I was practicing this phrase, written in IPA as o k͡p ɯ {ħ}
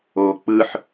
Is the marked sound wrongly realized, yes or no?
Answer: no